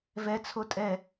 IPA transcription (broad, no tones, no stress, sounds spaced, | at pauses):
v ɛ t͡sʰ o tʼ ɛ